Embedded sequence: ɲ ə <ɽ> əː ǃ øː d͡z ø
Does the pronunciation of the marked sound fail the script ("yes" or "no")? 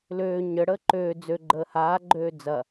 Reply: no